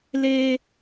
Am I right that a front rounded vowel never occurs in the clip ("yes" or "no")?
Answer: yes